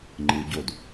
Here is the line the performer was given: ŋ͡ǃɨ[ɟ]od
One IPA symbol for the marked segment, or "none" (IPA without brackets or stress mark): ɟ